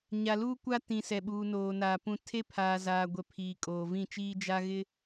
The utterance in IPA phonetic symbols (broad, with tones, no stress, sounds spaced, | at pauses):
ɲ a˨ l uː˦ kʷ a˦ t ĩ˨ s ɛ˨ ɓ uː˨ n oː˨ n aː˨ p ũ˨ tʰ e˦ pʰ aː˨ z aː˨ ɡʷ ɛ˨ pʰ iː˨ kʼ oː˨ v ĩ˦˨ t͡ʃ iː˦ d͡ʒ a˦ ɣ ɪ˦